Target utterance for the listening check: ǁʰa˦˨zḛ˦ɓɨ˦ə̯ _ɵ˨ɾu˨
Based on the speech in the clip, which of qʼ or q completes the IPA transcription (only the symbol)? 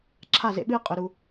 qʼ